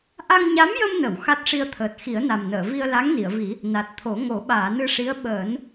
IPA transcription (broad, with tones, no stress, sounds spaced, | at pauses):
ʔ a˧ ŋ ɲ a˧˥ m j ə˧ m n ə˨˩˨ w x a˦˥ t̚ ʂ i˧ ə̯ t̪ʰ əː˨˩ t̚ x i˨˩˦ ə̯ n a˨˩ m n əː˨˩˨ v i˧ ə̯ l a˧˥ ŋ n i˨˩˨ ə̯ v i˨˩˦ | n a˨˩ t̚ t̪ʰ o˨˩˦ ŋ o˨˩˦ ɓ aː˨˩˨ n ɨ˧ ʂ i˧˥ ə̯ ɓ əː˨˩˦ n